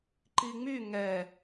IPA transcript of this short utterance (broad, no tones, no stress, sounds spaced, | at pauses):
ǃ i ŋ͡m y ŋ ɛ